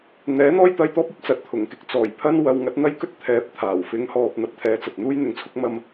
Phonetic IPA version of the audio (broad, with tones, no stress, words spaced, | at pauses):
n̪ɛː˨˥n̪ɔː˥jt̪ɐ˧jt̪ɔː˥p̚ ɵ˥t̚t͡sɐ˨˥t̚t̪ʰʊ˨˩ŋkɪ˨k̚ t͡sɔː˨˩j pʰɐ˥n wɐ˨˧wŋɐ˨˥t̚n̪ɐ˥jkɵ˥t̚ t̪ʰɛː˨˥p̚t̪ʰaː˨˩w fɪ˨˥ŋhɔː˨p̚ n̪ɐ˧p̚t̪ʰɛː˧t͡sɐ˨t̚ n̪uː˥jn̪ɪ˨˥ŋt͡sʰʊ˥k̚ mɐ˧m